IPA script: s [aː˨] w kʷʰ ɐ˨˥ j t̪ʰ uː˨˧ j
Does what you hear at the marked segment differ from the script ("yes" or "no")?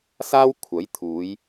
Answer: yes